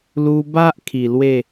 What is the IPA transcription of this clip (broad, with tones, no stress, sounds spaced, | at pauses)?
l u˧ b a˦ ʔ kʰ i˨˩ l w e˥˧